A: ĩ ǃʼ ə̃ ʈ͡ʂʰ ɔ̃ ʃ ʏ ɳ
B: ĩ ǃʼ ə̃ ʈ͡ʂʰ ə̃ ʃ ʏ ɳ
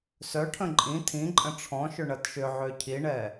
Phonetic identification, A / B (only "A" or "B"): A